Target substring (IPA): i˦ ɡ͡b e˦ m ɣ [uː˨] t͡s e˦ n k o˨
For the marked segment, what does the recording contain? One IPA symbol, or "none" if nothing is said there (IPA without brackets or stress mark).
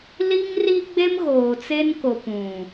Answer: oː˨